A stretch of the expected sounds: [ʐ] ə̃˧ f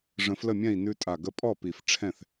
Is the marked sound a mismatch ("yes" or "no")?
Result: no